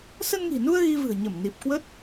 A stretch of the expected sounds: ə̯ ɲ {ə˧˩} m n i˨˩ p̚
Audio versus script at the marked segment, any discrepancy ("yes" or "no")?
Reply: no